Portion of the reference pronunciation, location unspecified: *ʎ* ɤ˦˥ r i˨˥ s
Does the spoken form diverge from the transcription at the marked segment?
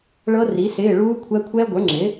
yes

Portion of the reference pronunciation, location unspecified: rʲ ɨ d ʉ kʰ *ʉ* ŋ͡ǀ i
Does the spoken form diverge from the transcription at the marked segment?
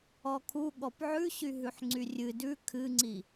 yes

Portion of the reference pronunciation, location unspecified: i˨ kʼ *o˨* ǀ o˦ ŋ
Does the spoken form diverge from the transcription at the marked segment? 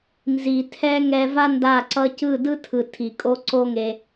yes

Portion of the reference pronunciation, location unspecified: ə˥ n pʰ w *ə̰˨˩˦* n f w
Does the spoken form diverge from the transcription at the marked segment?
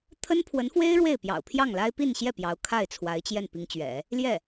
yes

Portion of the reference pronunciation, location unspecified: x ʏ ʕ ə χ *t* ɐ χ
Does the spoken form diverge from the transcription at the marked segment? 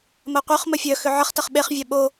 no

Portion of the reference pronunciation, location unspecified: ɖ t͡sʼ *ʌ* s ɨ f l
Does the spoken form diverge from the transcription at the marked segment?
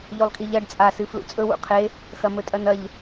yes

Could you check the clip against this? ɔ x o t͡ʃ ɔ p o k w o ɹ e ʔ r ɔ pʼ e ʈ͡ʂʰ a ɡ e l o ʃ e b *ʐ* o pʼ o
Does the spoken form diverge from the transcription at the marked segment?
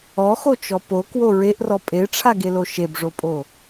no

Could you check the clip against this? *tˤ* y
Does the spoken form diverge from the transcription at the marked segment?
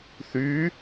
yes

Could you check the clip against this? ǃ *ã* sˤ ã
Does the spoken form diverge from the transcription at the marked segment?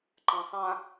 no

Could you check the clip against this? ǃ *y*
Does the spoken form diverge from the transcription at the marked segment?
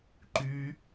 no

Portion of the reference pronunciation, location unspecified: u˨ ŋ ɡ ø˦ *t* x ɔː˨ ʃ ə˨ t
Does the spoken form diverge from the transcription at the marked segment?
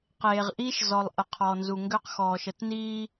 yes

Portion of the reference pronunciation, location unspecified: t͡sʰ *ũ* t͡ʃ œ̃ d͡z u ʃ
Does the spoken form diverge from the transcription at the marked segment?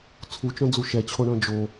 yes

